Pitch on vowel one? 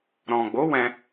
low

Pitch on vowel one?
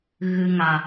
high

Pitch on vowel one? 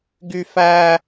high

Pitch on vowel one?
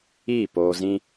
falling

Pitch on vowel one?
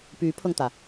rising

